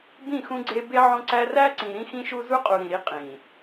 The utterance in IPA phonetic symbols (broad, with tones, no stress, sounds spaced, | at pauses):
b ĩ˦˨ x ũ˦ ɡ͡ǀ e˦ b e˦ ʕ õ˦ ǀ æ˦ r æ˦ ǀ ĩ˨ ɾ ĩ˦ x ĩ˦ ʃ u˦ z u˦ qʼ u˨ ɾ ĩ˨ ɾ i˦ qʼ ĩ˨